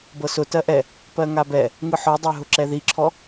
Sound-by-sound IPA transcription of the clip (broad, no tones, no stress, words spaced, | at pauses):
bɤsʊ tɜʔɛ | pɜŋabɛ | ŋɯħɔdˤɛɦʊ ǁɛðiǁʰɔ